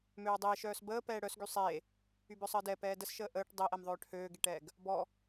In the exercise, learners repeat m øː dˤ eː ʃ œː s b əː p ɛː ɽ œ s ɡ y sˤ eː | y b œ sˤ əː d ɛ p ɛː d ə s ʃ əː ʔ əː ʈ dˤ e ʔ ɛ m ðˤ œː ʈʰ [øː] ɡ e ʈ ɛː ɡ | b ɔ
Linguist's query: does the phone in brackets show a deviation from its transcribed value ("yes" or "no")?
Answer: no